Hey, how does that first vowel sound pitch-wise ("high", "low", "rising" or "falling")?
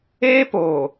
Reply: high